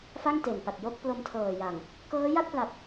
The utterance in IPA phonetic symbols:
f a˥˩ ŋ t e˨˩ n p a˨˩ t̚ j o˥˩ k̚ p l o˧ m tʰ ɤː˨˩ j a˨˩ ŋ | k ɤː˦˥ j a˥˩ t̚ p l a˨˩ p̚

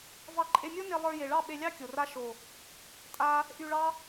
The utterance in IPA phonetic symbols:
v ɑ˧ ǃʼ e˧ mʲ o˦ n e˧ lˠ ə˞˧ j e˨ ɭ ɑ˦˨ ɓ e˧ lʲ ɑ˦ kʲ o˨ r a˦ ʃ o˨ | tʼ a˦ | ʔ y˧ ɭ ɑ˦

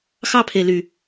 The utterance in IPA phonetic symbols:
x ɑ˦ pʰ e˨ l y˨

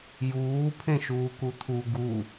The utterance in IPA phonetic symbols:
j uː pʰ ẽ ʃ uː k u t̪ʰ u ɡ u

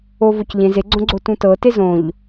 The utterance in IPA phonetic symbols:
o v o c ʎ ẽ z e ɡ͡ǀ õ ɡ͡ǀ o t ũ t ɤ t e z õ ʎ

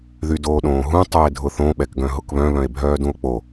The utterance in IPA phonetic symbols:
ð y d oː ɗ õː ɦ ũ tˤ u e̯ dʱ ʊ θ õ ɓ ɛ k ɡ œ̃ ɦ ʊ k β œ̃ β œ̃ e̯ bʱ œː d ũ o̯ k͡p o

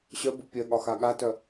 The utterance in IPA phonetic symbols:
ɕ œ b u pʲ œ ɠ ɒ x a ɠ a t œ

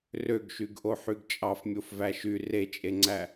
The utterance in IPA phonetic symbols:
r ø ɡ ʃ y ɡ ʔ o ħ y ɡ t͡ʃʼ ɑ f mʲ o f v æ ʃ y r e t͡ʃʼ e ŋ͡ǀ æ

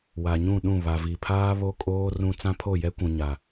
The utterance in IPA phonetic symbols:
w a˨ ɲ ũ˦˨ ɗ ũ˦˨ β a˨ v i˨ pʰ aː˦ β o˦ kʼ oː˦ r ũ˦ t͡s ã˦ pʰ o˦˨ j ɛ˦ kʷ ũ˨ ɲ a˨

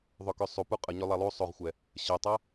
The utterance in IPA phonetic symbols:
ðˤ ø k ø sˤ u p u qʼ ə ɲ ø lˠ a lˠ u sˤ o ʁ xʷ ɛ | ɕ ə tˤ a

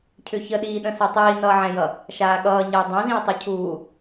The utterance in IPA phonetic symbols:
cʰ ʏ ç ə ɗ iː ɗ ə̃ s u tˤ iː n ʌː ʕ ɛ̃ j ʌ | ʃ aː ɠ ʌː ɲ ʌː dˤ ɛ̃ z ĩ e̯ tˤ ʏ cʰ uː

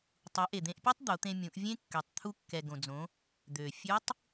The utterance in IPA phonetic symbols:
tˤ u˩˧ ʔ e˩ d̪ ẽ˧ ʔ pʲ ɛ˥ tˤ d̪ o˩˧ t̪ ẽ˧ mʲ ũ˩˧ ʔ vʲ ẽ˥ kː ø˩˧ tˤ t̪ʰ u˧ kː ɛ˩ ɡ õ˩ d͡z õ˩˧ | d̪ ø˩ fʲ ʉ˧˥ tˤ

